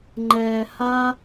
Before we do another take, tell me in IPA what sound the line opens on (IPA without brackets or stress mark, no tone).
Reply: ŋ͡ǃ